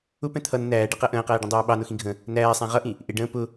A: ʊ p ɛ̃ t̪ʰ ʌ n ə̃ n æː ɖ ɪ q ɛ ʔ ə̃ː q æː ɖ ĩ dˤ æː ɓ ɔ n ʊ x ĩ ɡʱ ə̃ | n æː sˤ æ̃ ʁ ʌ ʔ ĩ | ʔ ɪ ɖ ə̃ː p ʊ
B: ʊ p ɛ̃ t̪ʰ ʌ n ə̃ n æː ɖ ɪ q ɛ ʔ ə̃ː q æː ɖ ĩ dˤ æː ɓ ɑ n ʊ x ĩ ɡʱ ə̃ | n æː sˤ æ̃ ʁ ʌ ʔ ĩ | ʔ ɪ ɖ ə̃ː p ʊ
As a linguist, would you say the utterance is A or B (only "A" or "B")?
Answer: B